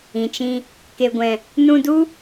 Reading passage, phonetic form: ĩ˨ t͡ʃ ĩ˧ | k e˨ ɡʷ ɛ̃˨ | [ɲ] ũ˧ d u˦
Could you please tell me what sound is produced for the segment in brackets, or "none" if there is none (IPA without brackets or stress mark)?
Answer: n